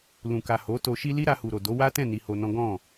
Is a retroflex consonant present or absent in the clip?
absent